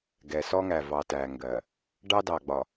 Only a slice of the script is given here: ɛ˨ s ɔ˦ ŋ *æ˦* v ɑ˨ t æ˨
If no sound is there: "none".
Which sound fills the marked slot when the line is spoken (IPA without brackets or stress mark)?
æ˨